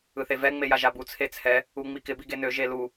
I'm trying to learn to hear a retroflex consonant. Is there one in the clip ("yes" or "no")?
no